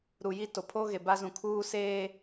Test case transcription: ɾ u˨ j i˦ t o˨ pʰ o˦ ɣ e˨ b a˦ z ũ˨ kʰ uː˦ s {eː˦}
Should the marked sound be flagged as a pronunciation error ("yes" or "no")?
no